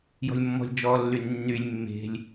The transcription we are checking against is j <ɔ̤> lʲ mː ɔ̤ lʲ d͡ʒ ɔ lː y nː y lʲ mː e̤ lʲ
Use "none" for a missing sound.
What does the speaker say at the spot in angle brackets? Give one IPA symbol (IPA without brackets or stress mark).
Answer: ɔ̤